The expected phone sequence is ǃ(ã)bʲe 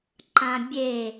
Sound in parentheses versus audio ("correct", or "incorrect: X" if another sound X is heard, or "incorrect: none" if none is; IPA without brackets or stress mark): correct